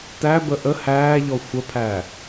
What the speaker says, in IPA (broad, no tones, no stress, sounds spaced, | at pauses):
t æ b ə ʔ ə h æː ʎ ɔ xʷ ə pʰ æː